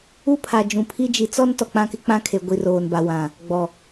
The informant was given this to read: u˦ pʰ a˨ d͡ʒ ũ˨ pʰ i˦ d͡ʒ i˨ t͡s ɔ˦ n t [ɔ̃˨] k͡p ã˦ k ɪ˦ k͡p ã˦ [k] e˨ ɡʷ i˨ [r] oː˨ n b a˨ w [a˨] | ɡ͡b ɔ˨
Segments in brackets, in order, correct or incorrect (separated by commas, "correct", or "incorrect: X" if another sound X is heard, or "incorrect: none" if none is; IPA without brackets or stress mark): incorrect: ɔ˨, incorrect: kʰ, correct, incorrect: ã˨